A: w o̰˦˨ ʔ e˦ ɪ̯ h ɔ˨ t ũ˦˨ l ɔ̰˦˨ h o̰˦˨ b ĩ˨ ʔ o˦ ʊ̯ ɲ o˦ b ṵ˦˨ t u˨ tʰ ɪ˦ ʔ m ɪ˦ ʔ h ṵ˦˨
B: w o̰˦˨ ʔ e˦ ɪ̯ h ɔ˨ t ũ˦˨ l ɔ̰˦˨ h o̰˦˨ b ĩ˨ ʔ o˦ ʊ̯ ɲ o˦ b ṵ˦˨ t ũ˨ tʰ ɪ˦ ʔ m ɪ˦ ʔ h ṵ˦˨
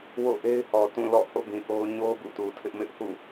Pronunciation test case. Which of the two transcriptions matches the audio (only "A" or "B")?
A